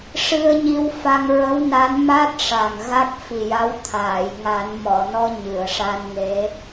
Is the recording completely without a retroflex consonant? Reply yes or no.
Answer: no